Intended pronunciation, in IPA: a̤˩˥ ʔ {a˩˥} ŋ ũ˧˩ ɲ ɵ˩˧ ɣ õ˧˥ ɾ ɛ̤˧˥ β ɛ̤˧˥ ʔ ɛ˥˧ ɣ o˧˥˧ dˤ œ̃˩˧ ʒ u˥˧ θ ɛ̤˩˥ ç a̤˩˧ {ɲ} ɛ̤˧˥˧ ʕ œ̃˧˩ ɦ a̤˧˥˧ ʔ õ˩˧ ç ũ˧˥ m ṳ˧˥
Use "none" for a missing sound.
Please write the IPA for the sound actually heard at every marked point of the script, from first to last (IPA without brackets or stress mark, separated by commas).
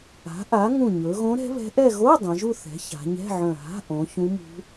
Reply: a˩˥, ɲ